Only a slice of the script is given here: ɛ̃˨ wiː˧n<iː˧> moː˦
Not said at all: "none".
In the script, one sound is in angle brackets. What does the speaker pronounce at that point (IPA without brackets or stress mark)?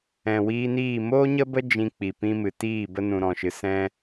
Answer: iː˦˨